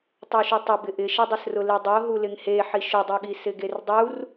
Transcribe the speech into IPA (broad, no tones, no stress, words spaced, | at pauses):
tˤuʃutˤʊbɪ ʔɪʃidˤɪsrʊ lidˤo ɦulɪŋhe ħiʃʊdˤoɠi sɪɡerdˤur